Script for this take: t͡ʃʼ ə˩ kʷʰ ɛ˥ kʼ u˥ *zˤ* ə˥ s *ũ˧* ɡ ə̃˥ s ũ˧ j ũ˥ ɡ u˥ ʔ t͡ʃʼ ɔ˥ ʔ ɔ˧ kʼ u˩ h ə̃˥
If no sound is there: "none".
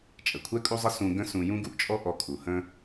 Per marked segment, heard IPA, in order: zˤ, ũ˧

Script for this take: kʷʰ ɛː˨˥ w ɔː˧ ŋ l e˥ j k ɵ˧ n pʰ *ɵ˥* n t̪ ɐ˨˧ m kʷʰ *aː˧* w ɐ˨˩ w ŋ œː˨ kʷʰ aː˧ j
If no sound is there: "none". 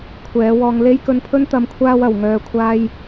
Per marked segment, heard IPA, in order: ɵ˥, aː˧

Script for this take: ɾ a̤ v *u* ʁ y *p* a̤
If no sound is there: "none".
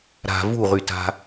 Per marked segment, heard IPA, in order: u, t

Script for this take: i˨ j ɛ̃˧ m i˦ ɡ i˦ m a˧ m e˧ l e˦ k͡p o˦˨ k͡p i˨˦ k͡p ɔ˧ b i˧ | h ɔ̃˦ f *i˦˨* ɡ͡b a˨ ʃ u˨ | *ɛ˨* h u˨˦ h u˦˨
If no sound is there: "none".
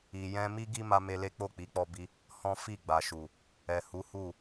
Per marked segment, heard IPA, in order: i˦˨, ɛ˨

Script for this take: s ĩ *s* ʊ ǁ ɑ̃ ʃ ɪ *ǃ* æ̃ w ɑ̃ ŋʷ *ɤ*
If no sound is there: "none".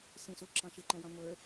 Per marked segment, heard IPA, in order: s, ǃ, ə˞

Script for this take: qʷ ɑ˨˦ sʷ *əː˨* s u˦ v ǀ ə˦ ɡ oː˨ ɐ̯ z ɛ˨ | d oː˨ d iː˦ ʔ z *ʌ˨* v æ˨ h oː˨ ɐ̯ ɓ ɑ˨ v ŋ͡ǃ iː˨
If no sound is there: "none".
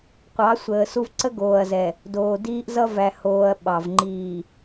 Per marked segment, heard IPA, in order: əː˨, ʌ˦

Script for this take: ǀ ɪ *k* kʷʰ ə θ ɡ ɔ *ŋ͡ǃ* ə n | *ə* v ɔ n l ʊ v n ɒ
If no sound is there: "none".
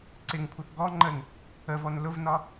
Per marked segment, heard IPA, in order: ŋ, ŋ͡ǃ, ə

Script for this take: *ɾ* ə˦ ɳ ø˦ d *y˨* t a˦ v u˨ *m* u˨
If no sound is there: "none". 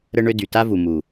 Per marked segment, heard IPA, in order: ɾ, y˨, m

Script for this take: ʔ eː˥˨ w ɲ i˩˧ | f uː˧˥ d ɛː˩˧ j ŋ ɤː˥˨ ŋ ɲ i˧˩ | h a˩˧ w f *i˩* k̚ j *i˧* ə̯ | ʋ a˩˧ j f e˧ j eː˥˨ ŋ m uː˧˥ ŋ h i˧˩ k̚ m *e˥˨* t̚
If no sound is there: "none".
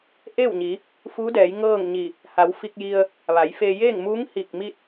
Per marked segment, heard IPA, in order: i˧, i˧, i˥˨

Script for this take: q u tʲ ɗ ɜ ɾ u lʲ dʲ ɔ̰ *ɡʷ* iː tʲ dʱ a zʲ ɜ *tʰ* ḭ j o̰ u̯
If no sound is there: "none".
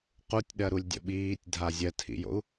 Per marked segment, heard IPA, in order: ɓ, tʰ

